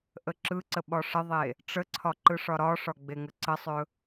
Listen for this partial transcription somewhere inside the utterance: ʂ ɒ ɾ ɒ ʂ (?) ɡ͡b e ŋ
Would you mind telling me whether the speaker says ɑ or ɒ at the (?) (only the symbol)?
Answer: ɒ